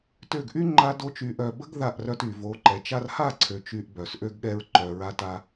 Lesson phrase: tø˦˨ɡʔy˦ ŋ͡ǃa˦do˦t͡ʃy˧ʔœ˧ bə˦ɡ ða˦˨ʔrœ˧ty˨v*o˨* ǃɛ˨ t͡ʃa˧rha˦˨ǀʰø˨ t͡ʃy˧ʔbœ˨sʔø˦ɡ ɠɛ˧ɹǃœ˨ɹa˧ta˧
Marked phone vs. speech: incorrect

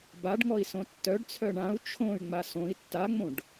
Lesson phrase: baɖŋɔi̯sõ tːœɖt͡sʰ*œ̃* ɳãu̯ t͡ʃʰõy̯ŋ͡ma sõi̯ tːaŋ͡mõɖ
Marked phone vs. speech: incorrect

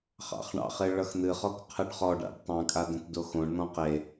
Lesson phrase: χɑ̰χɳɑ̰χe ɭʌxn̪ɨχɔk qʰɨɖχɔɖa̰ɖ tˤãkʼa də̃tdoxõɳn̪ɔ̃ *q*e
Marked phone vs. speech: correct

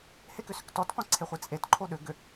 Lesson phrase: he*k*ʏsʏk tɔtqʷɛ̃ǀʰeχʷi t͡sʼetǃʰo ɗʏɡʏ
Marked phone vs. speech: correct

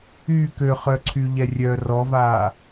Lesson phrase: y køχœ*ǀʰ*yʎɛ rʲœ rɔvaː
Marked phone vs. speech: correct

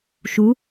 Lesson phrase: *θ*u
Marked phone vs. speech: incorrect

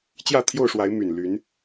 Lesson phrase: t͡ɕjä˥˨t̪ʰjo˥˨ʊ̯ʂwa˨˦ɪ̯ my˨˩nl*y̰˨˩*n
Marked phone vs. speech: incorrect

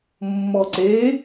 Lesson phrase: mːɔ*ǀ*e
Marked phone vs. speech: correct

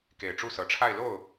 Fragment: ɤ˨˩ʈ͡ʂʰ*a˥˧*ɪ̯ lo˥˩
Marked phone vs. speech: correct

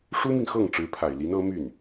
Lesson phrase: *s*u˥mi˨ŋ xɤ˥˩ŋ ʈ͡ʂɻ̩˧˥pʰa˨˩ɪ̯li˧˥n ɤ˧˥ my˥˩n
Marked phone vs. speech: incorrect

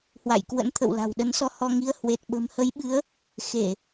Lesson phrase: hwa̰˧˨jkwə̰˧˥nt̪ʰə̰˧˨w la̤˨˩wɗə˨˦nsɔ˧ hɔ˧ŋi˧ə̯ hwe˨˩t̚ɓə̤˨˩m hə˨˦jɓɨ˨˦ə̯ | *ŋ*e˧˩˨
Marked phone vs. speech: incorrect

